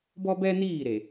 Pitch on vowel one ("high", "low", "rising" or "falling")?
high